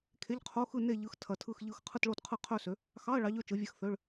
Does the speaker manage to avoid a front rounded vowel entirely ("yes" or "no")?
no